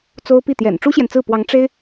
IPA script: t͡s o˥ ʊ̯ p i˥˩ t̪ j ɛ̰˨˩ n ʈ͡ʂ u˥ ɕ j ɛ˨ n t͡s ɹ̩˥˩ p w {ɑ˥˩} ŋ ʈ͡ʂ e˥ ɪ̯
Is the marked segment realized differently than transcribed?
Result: yes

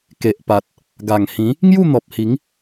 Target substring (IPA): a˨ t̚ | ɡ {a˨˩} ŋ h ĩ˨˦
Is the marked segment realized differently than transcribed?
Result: no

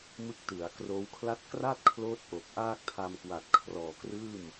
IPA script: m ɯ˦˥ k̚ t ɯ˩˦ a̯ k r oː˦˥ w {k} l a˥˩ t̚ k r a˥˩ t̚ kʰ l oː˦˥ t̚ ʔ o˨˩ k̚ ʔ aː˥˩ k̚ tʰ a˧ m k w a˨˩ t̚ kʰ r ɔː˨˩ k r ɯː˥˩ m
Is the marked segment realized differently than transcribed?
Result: yes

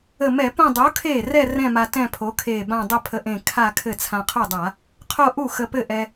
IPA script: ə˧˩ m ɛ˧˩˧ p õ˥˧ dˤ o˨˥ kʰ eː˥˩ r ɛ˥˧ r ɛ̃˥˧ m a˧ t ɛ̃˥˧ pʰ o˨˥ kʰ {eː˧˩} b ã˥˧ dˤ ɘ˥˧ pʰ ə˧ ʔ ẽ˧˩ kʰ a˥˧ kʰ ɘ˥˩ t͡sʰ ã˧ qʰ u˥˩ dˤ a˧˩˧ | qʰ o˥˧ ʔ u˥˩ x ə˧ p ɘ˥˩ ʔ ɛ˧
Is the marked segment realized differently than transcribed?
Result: no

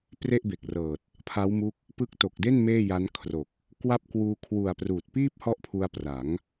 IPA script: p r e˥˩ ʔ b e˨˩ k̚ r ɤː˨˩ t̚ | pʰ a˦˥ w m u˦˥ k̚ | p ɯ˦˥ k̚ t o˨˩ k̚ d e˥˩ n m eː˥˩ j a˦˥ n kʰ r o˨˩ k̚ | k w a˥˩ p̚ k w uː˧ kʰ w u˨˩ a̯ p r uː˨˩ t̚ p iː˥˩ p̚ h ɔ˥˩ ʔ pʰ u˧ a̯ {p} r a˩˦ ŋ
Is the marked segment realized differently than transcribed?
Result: no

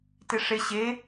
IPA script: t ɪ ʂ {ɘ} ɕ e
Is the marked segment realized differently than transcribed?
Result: yes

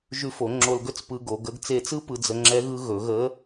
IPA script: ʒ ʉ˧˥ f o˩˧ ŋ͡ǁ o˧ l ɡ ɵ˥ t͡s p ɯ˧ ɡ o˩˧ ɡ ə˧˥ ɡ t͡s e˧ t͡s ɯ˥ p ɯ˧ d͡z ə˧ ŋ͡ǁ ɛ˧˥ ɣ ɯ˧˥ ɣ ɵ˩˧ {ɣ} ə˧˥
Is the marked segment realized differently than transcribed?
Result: no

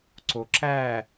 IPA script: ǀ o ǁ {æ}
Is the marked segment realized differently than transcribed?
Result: no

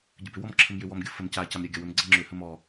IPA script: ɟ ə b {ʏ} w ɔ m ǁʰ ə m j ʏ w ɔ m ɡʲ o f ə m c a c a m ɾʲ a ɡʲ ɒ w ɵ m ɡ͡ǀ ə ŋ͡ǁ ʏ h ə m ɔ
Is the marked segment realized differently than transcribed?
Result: no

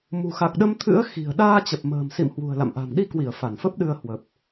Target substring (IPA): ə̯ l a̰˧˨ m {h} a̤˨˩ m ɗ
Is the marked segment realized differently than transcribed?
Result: yes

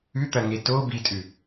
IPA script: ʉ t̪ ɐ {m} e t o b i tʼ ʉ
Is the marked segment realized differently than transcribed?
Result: yes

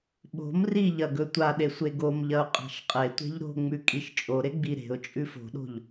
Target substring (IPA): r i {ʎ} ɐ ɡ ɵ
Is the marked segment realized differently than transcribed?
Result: no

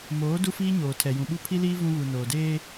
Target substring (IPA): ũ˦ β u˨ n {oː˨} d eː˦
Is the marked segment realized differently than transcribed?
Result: no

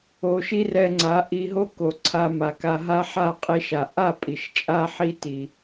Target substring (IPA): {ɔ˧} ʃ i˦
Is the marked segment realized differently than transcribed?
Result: yes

